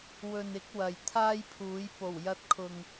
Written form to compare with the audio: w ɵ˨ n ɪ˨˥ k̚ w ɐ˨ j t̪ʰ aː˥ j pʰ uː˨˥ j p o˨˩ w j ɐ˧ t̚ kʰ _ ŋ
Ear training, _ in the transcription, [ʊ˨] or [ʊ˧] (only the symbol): ʊ˨